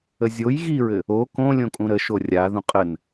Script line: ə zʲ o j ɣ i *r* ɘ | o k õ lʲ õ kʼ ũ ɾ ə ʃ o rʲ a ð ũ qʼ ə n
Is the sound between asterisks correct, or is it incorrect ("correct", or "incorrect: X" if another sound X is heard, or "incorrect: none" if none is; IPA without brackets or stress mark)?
incorrect: ɹ